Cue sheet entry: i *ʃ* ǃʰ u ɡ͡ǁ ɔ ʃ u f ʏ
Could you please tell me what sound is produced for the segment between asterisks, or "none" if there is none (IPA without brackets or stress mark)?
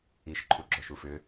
ʃ